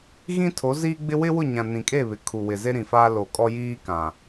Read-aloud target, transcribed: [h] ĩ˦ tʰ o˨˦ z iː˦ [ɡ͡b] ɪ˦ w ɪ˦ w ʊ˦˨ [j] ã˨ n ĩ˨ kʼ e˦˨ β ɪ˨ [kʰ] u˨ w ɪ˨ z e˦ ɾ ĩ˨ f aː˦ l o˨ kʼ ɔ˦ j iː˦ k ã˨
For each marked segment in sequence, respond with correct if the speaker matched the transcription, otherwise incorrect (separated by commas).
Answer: incorrect, correct, incorrect, correct